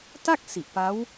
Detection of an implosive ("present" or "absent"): absent